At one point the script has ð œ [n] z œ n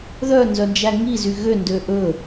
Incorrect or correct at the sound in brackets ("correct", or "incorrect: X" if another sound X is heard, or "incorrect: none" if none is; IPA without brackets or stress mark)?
correct